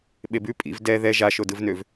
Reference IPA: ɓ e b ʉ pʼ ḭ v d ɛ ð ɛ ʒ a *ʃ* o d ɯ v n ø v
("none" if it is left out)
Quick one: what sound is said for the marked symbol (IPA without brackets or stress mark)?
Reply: ʃ